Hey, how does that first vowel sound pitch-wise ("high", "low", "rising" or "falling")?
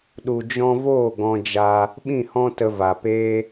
low